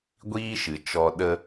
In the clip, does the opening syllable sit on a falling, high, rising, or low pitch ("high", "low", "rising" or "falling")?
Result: high